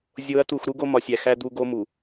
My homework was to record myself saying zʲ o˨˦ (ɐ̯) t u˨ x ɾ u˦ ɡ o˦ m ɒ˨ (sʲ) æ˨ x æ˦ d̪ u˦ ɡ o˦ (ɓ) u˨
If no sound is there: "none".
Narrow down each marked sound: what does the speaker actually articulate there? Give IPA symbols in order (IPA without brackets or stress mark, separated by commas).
ɐ̯, sʲ, m